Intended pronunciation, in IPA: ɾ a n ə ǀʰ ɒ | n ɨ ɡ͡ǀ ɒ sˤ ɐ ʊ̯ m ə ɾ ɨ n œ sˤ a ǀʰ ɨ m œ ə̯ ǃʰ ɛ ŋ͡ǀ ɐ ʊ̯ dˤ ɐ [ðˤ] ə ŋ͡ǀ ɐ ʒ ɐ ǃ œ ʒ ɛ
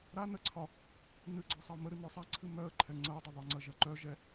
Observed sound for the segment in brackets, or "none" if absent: ðˤ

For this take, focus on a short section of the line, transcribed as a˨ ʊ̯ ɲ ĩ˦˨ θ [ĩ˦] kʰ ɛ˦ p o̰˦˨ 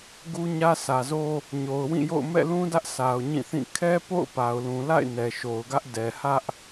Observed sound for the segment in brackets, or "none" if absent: ĩ˦˨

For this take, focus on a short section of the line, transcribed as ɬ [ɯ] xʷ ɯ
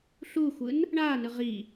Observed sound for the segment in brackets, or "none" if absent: u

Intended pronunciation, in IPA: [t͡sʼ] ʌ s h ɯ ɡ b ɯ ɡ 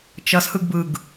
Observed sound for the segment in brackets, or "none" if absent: t͡ʃ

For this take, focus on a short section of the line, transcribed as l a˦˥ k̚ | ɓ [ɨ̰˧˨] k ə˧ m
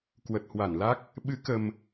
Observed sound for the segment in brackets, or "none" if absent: ɨ˨˦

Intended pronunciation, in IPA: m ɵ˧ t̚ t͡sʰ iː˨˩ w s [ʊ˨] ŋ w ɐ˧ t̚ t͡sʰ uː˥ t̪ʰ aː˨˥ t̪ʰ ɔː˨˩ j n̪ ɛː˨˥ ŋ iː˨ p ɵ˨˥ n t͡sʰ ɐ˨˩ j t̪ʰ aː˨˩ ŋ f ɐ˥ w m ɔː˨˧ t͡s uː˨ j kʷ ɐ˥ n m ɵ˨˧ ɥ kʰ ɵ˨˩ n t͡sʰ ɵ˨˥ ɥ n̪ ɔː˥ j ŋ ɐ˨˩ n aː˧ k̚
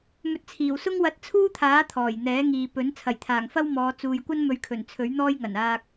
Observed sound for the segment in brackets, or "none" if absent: ʊ˥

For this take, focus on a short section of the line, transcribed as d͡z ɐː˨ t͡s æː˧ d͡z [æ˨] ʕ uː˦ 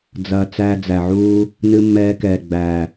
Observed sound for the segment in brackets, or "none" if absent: æ˨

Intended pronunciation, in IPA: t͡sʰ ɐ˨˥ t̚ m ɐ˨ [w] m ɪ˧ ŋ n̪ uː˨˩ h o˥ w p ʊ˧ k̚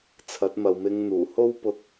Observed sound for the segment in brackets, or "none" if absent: w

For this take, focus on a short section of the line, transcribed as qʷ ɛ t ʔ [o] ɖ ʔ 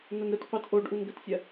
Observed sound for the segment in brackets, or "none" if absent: o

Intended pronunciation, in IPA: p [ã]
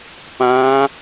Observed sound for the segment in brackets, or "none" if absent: ã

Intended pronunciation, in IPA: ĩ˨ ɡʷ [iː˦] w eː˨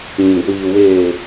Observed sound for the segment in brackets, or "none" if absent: iː˨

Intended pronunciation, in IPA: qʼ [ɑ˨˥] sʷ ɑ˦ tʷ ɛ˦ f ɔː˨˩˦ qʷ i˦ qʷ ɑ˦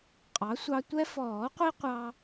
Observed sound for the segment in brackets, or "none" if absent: ɑ˨˥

